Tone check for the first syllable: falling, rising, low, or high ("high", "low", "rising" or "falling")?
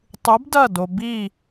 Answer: rising